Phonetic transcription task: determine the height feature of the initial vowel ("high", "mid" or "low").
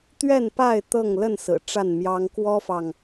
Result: mid